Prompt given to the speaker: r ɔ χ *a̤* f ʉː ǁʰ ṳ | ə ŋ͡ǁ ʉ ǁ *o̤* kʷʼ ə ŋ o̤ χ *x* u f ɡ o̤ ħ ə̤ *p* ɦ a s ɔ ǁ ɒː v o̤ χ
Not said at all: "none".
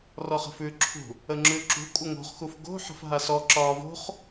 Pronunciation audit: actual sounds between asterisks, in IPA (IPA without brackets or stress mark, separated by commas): ə̤, ṳ, x, f